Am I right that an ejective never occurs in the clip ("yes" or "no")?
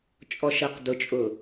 no